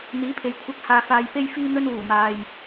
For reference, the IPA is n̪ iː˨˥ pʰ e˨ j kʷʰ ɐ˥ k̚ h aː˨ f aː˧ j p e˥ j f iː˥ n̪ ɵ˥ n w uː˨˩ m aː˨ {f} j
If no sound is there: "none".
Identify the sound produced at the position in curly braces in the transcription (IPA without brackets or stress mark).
none